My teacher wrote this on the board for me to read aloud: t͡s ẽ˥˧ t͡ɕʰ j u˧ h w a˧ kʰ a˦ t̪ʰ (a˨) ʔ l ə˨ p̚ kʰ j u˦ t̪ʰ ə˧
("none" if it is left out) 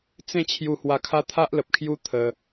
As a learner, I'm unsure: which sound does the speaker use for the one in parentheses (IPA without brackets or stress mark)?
a˦